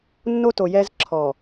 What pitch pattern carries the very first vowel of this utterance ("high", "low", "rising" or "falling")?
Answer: high